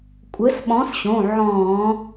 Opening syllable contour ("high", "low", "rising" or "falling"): rising